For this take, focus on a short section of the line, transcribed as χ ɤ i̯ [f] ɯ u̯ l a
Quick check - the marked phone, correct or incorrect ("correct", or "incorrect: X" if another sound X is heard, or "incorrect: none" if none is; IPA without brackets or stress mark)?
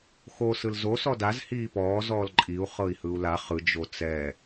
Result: incorrect: h